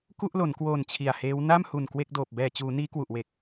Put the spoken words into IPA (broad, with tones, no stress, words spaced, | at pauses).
ku˥˩ʔlo˩˦nkwoː˨˩n t͡ɕʰi˨˩a̯heː˦˥w na˥˩mhu˨˩n kwe˥˩k̚doː˨˩p̚ bɛː˨˩t͡ɕuː˩˦ niː˦˥kwu˨˩ʔwe˨˩k̚